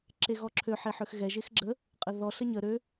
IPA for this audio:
ǁ e ɣ ɔ ǁʰ ø ħ e ħ ø x ɣ ɛ ʒ e x ɡ͡ǁ ə | qʼ ə ð ɔ ɬ ə ɲ ə ɾ ø

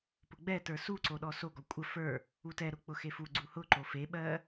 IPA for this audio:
p ʊ ɡ͡b ɛ t ə˞ s u ǀ o ɗ ɔ s o ɡ ɔ kʷʼ ə f ə˞ | u t ɛ ɾ ʊ k͡p ʊ x e f u ɡ͡ǀ u h ʊ ǃ o f e ɓ ɜ

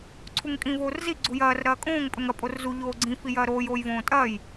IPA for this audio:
ǀʰ u ŋ kʼ ĩ v oː r z i ɡ͡ǀ u j ɐː r ɾ ɐː kʼ õː ŋ pʼ ɵ ŋ ɐ pʼ o r z u ʎ oː ɡ͡ǀ ĩ f i j ɐː ɾ oː j oː j v õː tʼ ɐː j

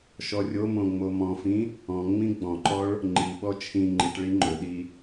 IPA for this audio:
ʃ ɔ rʲ o m õ ŋ͡m o m ɔ̃ f ĩ | ɔ̃ ŋ͡m ĩ ɡ͡b ɔ̃ ǃ ɔ ɭ | ŋ͡ǃ i ɓ ɔ t͡ʃʰ ĩ ŋ͡ǃ i ʈ ɭ i ŋ͡ǃ ɵ ɗ i

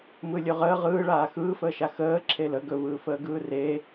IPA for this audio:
m ɯ lʲ ɵ ʁ əː ʁ ɯː ɭ aː x ɯː f əː ʃ a x əː ǁʰ e l ə ɡ ɵ v ɯː f əː ɡ ɯː r e

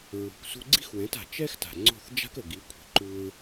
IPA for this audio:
ɹ ṳ˩ k s ṳ˧ ɡ͡ǀ i̤˥ x w ɛ̃˩˥ t a̤˩ t͡ʃ ɛ˥ x t a̤˩ ŋ͡ǀ o̤˥˩ θ d͡ʒ a̤˥ k ə˩ ɡ i˩˥ kʷʰ i̤˩ ǃ u˧ ɹ

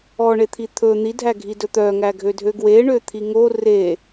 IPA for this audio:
ɔ ɳ e t̪ʰ i t̪ʰ ɵ n̪ i dʱ æ ɡʱ i d ɵ t̪ œ ŋ æ ɡʱ ø dʱ ø ɡ w e ɳ ø t̪ʰ i ŋ o r e

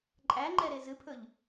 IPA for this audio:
ǃʼ æ ŋ͡ǃ ɛ ɾ e z ɨ pʰ ɵ ʎ

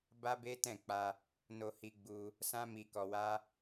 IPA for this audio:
b a˦ b e˦ t ɛ̃˦˨ k͡p a˧ | n o˧ h i˧ ɡ͡b u˧ | s ã˦ m i˧ k ɔ˧ w a˦

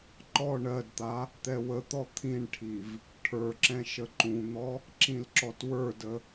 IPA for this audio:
ǃ ɔ ɳ ɜ d t̪ a | t̪ ɛ w ə t̪ ɔ t̪ʰ ĩ ɳ ʈʰ i v | ʈʰ ə˞ ǁ ɛ̃ ʃ ə ǃ ũ n̪ ɔ | ǁ ĩ l ǁ ɔ t w ə˞ d ə

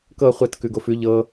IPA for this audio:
k ɤ χʷ ɛ t k ʉ ɡ o f ʉ ʎ ɤ

